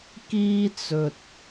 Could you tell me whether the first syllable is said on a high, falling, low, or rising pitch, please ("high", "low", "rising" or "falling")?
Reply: high